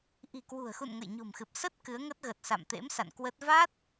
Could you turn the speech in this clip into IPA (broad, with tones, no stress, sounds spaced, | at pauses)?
ʔ i̤˨˩ k w ṳ˨˩ ə̯ x ṵ˧˨ n ŋ ə̰˧˨ j ɲ o̤˨˩ m x ɨ˨˩ p̚ s ə˦˥ t̚ k ɨ˨˦ ə̯ ŋ ə˦˥ t̚ ɣ ə˨˩ t̚ s a̰˧˨ m t̪ ḛ˧˥ m s a̰˧˨ n k w ə˦˥ t̚ v a˦˥ t̚